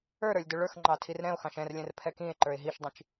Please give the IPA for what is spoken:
ə˞ ɾ ə˞ lʲ d ɵ ɭ ə˞ x ŋ͡ǃ ɑ tʰ i r ɾ ɛ̃ o̯ x ɑ̃ ʃ ɛ̃ r lʲ ɛ̃ r pʰ ɛ k ĩ e̯ ǃ ə˞ e̯ ɦ i ʃ dˤ ĩ t͡ʃ

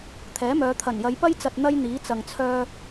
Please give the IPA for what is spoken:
t̪ʰ ɛː˨˥ m œː˨˧ t̪ʰ ɐ˨˩ n j ɐ˨˧ j p ɐ˥ j t͡s ɐ˧ t̚ n̪ ɐ˥ j n̪ iː˨˥ t͡s ɐ˨ ŋ t͡sʰ œː˧

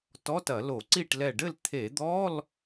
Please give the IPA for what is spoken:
t ɔ˧˥˧ t ɐ˧˩˧ l o˧˩˧ ǀ i˥˨ ʈ l ɛ˧˩ ɖ ɘ˥˨ l t̪ʰ e˧˩˧ d̪ ɔ˧˥˧ l

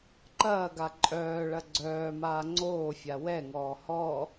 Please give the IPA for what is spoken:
ǃ ɐː ɡ a ǃʼ œː ɭ ɐ ɡ͡ǀ œː m aː ŋ͡ǀ oː fʲ a w ɛ ŋ ɔː h ɔ

